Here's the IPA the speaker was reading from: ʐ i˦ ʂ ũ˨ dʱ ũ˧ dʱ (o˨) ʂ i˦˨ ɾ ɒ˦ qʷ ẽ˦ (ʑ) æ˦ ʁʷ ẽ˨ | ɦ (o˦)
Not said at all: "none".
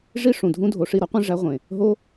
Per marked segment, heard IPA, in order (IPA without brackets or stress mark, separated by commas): o˨, ʐ, o˦